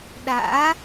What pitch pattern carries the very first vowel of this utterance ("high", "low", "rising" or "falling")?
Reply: rising